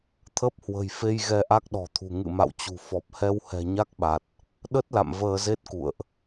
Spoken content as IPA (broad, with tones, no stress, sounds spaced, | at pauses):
t̪ʰ ə˦˥ p̚ h w ə̤˨˩ j f e˧ j ɣ ɛ˧ ʔ a˦˥ k̚ ɗ ɔ̤˨˩ t̪ʰ ṳ˨˩ ŋ ɨ̰˧˨ m a̰˧˨ w t͡ɕ ṳ˨˩ f ɔ˨˩ p̚ h ɛ˧ w h ɛ̤˨˩ ɲ a˦˥ k̚ ɓ a˨˩ t̚ | ɗ ə˦˥ t̚ l a̰˧˨ m v əː˧ z e˦˥ t̚ k ṵ˧˨ ə̯ ʔ